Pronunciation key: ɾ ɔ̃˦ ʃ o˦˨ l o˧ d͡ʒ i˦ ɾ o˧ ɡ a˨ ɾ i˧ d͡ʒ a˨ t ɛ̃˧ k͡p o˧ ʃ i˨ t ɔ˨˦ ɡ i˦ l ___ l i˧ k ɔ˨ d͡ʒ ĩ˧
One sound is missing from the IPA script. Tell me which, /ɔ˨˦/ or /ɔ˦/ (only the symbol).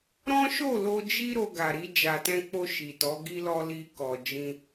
ɔ˦